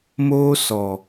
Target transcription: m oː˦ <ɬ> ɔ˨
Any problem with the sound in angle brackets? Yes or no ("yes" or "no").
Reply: yes